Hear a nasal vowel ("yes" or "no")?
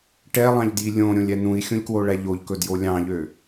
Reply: yes